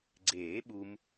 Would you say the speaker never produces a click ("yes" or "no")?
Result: no